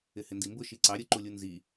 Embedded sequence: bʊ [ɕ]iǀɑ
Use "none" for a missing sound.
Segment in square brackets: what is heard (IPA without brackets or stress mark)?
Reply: ʃ